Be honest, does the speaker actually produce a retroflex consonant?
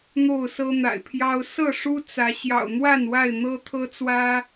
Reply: yes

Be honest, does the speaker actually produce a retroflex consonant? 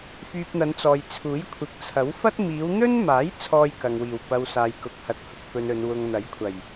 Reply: no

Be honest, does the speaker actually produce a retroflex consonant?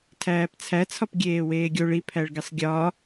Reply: yes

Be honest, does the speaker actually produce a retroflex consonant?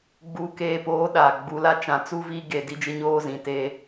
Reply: no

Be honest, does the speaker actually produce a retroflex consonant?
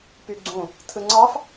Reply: no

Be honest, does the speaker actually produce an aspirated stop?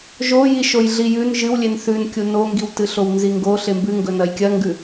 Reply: no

